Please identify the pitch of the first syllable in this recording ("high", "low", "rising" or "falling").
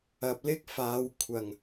low